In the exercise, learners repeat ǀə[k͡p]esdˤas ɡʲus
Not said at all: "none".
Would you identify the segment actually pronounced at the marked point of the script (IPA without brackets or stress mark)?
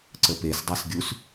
p